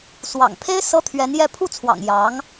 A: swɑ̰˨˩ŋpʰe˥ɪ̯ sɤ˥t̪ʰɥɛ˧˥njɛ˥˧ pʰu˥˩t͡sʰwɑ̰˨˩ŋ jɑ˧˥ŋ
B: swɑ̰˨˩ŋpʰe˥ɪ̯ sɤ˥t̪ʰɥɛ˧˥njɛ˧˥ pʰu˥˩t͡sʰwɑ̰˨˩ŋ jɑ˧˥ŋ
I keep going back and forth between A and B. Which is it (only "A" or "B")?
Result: A